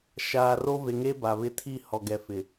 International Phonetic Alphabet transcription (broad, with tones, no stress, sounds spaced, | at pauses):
ʃ aː˨ r o˦ v e˨ ŋ e˦ b a˨ β ɪ˦ tʰ i˦˨ h ɔ˨ ɡ ɛ˨ f ɪ˨